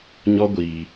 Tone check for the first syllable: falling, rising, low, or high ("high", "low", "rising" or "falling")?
high